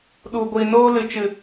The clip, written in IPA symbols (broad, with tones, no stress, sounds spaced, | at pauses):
ɗ u˨ ɡʷ i˨ n oː˧ l ɨ˨ t͡ʃ ɨ˨